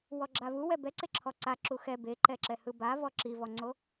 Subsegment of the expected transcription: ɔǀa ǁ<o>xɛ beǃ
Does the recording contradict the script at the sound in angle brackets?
yes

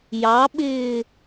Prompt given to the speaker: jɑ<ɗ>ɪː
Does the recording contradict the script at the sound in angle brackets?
yes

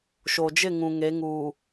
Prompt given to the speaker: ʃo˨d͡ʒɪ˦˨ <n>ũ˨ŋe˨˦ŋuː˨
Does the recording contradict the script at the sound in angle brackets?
yes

